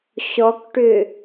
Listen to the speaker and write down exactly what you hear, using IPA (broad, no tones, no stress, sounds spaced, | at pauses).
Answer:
ɕ ɔ k ʈ ʏ